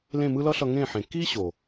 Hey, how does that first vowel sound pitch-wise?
falling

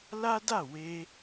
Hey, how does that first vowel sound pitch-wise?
high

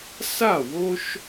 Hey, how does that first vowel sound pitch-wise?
falling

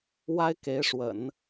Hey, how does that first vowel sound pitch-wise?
high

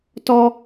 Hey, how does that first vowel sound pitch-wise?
high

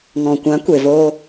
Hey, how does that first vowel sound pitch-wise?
low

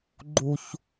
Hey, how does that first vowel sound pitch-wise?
low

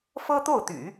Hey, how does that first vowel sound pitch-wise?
high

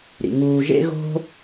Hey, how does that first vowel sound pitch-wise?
low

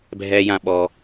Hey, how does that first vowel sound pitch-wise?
low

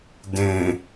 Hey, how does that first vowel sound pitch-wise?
low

